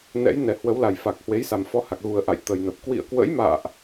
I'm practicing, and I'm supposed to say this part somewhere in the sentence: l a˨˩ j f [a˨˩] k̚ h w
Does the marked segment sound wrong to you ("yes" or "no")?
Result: no